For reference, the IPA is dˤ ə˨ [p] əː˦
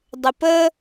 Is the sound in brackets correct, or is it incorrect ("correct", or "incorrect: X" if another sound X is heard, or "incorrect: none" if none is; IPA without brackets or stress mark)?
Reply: correct